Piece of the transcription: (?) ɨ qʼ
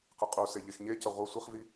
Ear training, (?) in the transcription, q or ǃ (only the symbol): q